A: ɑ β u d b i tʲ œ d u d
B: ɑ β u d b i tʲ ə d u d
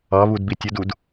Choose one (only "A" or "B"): B